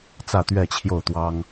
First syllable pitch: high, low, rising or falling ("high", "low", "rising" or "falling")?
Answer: falling